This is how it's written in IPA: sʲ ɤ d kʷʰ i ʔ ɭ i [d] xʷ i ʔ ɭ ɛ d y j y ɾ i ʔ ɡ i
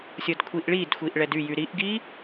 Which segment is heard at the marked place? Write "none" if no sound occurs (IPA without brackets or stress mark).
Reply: d